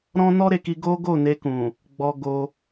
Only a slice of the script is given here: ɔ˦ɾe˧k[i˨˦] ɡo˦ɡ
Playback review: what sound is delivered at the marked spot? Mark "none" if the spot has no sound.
i˧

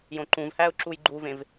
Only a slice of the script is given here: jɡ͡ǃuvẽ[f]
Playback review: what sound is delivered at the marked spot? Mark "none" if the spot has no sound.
v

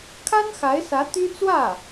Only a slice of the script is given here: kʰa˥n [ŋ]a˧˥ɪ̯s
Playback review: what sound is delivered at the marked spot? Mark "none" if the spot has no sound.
x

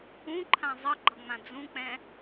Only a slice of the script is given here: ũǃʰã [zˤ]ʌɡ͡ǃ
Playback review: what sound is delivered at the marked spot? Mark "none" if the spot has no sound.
zˤ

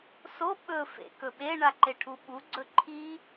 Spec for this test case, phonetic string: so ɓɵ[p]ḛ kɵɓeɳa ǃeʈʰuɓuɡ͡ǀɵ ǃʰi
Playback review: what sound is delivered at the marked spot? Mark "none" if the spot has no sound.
f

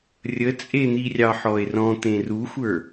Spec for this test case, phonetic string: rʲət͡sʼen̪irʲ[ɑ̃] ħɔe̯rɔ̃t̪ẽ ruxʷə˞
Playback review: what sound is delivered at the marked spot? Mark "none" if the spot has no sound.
ɑ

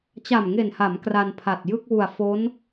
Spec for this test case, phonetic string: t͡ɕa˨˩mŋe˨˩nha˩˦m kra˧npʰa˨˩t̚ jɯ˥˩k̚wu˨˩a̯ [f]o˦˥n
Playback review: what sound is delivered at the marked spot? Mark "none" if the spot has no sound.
f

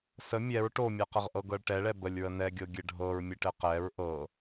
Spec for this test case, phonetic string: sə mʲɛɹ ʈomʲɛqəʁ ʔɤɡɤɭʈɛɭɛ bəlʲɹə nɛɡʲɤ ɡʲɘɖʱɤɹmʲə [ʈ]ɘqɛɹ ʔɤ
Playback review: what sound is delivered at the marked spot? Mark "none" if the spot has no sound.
ʈ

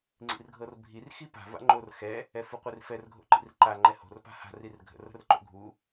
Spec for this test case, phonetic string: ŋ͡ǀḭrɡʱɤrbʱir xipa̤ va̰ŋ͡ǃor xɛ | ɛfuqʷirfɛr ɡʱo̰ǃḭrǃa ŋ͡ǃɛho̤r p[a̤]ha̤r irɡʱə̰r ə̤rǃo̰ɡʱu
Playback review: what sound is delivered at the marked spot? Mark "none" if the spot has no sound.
a̤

